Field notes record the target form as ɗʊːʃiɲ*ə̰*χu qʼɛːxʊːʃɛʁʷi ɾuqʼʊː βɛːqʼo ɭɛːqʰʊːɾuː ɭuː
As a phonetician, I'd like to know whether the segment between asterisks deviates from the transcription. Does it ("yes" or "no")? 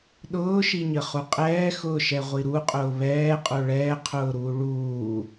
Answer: yes